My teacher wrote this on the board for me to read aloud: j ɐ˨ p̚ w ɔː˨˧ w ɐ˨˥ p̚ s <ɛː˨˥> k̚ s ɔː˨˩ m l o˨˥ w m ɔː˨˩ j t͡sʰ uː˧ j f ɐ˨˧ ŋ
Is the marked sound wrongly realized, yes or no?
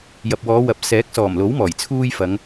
no